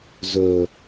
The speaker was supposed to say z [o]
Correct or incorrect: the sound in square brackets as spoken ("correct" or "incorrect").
incorrect